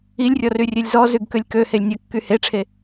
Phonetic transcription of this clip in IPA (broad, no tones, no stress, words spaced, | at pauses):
ilʲrʲɔryrʲelʲ zɔzyɡkølʲ køhelʲ nʲɐkːy heʈ͡ʂʰe